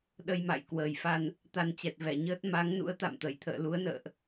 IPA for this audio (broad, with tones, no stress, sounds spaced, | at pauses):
ɗ ə˧ j m a̰˧˨ j k w əː˨˩ j f a˧ n | t̪ a˧ n t͡ɕ ɛ˨˩ t̚ v ɛ˧˩ ɲ əː˦˥ t̚ m a˨˦ ŋ n ṵ˧˥ ə̯ t̪ a̰˧˨ m t̪ ə˧˩ j t̪ʰ ə̰ː˧˨ l u˨˦ ə̯ n ə̰ː˧˨ ʔ